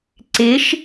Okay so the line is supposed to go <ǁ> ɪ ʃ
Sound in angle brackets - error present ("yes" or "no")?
yes